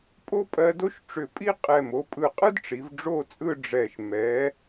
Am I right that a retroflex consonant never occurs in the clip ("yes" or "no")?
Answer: no